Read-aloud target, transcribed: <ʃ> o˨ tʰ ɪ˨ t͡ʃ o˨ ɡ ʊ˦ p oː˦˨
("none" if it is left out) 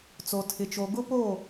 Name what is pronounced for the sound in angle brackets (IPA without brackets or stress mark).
t͡s